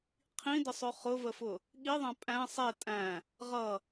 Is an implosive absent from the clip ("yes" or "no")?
no